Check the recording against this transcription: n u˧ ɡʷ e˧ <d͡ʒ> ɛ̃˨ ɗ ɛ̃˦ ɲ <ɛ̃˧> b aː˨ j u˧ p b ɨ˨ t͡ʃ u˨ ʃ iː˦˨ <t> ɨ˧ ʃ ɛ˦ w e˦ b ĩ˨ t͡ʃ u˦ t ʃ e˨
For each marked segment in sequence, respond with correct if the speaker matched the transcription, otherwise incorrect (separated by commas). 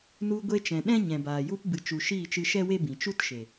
incorrect, incorrect, incorrect